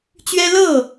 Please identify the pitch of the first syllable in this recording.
high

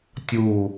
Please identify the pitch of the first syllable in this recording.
low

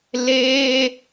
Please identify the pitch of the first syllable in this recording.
high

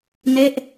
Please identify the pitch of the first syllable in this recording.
falling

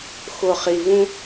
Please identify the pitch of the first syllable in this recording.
low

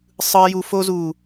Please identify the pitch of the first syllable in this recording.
high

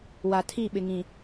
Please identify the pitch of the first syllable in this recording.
low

